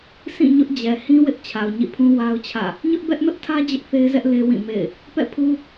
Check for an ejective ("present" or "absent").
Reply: absent